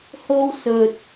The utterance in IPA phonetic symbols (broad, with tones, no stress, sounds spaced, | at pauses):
h o˥ w s ɵ˧ t̚